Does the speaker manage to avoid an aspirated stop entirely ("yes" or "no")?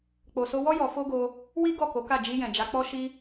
yes